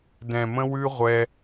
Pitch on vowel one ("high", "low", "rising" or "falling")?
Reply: low